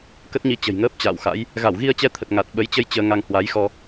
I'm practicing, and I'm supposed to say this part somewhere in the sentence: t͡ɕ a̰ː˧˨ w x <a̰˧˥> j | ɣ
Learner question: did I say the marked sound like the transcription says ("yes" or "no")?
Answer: yes